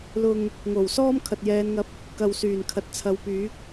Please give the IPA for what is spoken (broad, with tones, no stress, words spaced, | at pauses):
lʊ˨ŋ | ŋo˨˩w sɔː˥mkʰɐ˨t̚jɛː˨˧nŋɐ˧p̚ | kɐ˨wsyː˨˩n kʰɐ˨t̚t͡sʰɐ˨˧wpyː˨˥k̚